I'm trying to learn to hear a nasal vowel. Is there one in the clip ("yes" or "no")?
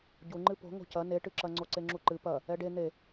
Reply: no